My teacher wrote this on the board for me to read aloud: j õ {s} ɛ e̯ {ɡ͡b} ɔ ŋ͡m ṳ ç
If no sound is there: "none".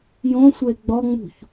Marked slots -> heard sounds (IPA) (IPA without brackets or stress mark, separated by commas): sʷ, ɡ͡b